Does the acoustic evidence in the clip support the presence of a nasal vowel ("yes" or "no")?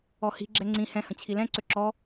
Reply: yes